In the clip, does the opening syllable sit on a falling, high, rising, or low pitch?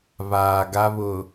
low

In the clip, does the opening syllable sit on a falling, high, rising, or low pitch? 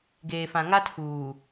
low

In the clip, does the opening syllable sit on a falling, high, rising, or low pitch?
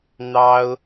high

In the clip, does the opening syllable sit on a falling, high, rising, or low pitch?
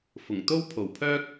low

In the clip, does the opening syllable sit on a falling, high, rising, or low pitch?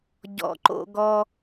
low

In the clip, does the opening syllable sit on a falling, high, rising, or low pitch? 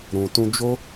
low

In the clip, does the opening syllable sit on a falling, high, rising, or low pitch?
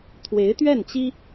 rising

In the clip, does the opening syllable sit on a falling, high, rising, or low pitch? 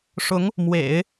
rising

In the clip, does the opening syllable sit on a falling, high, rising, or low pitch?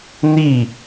falling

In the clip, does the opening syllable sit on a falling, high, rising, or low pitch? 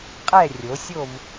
falling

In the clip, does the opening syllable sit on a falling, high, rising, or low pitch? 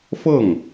falling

